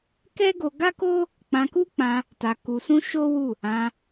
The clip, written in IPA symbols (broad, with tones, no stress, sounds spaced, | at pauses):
k ɛ˦ ɡ o˧ ɡ a˦ k o˦ | k͡p ã˧ k u˦ k͡p ã˧ | t a˧ k u˧ s ũ˦ ʃ o˦ w u˦˨ | ã˧